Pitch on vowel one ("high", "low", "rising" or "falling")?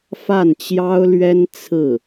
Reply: falling